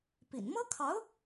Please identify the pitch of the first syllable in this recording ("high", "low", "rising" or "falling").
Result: low